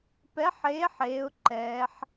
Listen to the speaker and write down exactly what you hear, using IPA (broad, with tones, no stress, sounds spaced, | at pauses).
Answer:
p ɛ˨˥ ħ eː˨˥ ħ eː˩˧ ʊ̯ ǃ ɛː˩˧ ħ